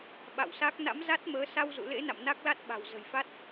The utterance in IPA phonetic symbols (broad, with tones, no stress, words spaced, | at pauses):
ɓa̰˧˨wsa˦˥k̚ na̰˧˥mza˦˥t̚məː˨˦ sa˧wzṵ˧˨ lḛ˧˥na̰˧˨m na˦˥k̚la˦˥t̚ɓa̤˨˩w zə̤˨˩jfa˦˥t̚